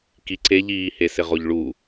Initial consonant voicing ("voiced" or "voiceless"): voiceless